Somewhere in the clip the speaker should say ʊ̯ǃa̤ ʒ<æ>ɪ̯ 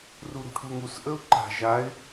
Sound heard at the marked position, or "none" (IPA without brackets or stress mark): a